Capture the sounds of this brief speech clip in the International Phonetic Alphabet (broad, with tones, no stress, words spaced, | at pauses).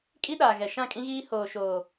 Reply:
kʼi˦ɗaː˨ ɣɛ˨ʃã˦˨kʼĩ˦ɣiː˦ hoː˨ʃoː˨